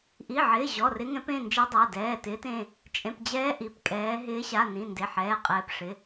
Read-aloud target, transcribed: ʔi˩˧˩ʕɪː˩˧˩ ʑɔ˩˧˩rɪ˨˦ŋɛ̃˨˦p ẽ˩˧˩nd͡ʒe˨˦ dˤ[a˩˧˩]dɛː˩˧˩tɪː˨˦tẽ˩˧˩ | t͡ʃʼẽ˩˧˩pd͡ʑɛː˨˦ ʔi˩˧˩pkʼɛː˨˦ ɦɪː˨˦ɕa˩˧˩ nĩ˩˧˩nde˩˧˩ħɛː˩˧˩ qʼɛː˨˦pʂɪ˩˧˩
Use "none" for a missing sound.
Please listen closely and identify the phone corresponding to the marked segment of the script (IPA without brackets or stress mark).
a˩˧˩